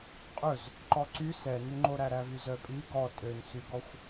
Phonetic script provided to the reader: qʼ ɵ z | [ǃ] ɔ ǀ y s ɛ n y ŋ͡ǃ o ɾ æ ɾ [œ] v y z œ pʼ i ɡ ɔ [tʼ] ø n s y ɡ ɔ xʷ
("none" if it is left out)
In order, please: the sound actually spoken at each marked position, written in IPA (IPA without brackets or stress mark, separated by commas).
ǃ, æ, tʼ